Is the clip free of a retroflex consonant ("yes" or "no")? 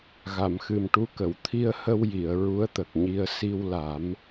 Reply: no